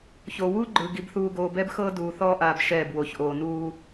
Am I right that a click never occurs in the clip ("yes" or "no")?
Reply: no